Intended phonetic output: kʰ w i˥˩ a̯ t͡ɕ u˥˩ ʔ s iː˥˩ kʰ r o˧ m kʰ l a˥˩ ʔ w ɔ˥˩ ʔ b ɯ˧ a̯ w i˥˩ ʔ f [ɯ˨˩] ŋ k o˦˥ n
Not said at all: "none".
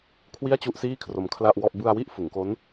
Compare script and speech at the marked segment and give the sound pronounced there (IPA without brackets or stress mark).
ɯ˩˦